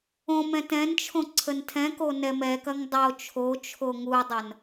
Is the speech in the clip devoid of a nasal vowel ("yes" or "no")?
no